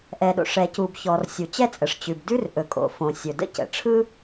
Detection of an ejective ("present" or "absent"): present